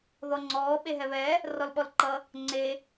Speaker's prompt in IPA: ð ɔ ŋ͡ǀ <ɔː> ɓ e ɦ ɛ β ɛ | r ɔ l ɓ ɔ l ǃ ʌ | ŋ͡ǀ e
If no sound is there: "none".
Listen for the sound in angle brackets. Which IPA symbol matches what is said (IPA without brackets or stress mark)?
ɔː